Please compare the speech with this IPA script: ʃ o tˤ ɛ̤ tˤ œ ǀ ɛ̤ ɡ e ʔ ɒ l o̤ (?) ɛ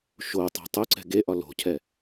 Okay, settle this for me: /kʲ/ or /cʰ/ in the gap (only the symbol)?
cʰ